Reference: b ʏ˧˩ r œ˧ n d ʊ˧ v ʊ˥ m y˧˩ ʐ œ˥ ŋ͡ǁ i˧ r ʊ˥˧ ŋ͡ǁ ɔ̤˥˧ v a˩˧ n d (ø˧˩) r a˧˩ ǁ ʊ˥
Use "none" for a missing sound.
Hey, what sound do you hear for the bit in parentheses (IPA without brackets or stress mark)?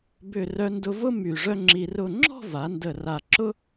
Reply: ə˧˩